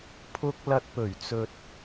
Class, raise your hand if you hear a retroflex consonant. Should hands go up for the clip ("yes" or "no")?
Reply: no